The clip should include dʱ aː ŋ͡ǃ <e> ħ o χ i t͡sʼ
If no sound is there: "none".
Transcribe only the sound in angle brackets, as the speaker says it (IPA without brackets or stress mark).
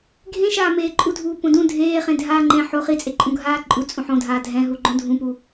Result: ẽ